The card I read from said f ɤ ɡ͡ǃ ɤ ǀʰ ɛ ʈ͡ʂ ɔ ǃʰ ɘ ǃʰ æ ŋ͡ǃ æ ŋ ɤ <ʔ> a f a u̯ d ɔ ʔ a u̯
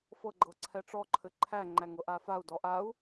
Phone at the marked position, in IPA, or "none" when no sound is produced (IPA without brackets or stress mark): ʔ